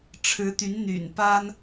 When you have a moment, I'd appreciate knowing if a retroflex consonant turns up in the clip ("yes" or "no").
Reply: yes